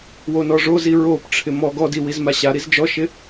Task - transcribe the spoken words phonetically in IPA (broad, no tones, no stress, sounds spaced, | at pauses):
w o n ɔ ʐ o z i ɹ o p ʈ͡ʂʰ ɪ m ɔ ɡ ɔ d i w i z m a ɕ a ɾ i z d͡ʒ ɔ ʃ ɪ